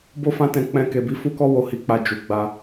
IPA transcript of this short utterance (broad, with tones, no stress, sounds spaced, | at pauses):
b o˦ f ã˦ t ɛ̃˧ k͡p ɛ̃˧ k e˨ b i˨˦ f u˦ k ɔ˦ w o˧ h i˧ k͡p a˧ d͡ʒ u˨ ɡ͡b a˧